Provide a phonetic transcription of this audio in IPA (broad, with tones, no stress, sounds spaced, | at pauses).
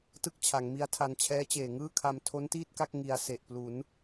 t ɯ˥˩ k̚ t͡ɕʰ a˩˦ ŋ m i˦˥ a̯ tʰ a˧ n t͡ɕʰ ɛː˦˥ t͡ɕ eː˨˩ ŋ ɯː˥˩ kʰ a˧ m tʰ o˦˥ n t iː˥˩ t̚ k a˥˩ k̚ ŋ i˧ a̯ s e˨˩ ʔ p l u˩˦ n